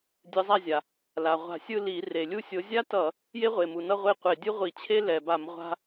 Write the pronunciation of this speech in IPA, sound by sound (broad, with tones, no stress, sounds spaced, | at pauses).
dʲ ɯ˨˦ zˤ a˥˨ zʲ a˩ | l a˩ ʁʷ a̤˧˩˧ sʲ ɯ˥˨ l i˧˩˧ r e˩ lʲ u˥˨ sʲ o˨˦ zʲ a˥ t ʌ˧˩˧ | j e˥ ʁʷ e˩ m u˩ n ʌ˥˨ ʁʷ e˥˨ qʷ e˧˩˧ dʲ ɯ˥ ʁʷ i˧˩˧ t͡ɕʰ e˥ l ɛ˩ b a˧˩˧ m ʁʷ a̤˥